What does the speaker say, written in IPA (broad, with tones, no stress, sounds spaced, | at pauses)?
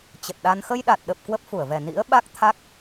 t͡ɕ ə˨˩ t̚ ɗ a˧ n x ə˧ j ɗ a˨˩ t̚ ɗ ə˨˩ p̚ k w ə˦˥ p̚ f u˧˩ ə̯ v ɛ˨˩ n ḭ˧˥ ə̯ ɓ a˦˥ k̚ t̪ʰ a˦˥ k̚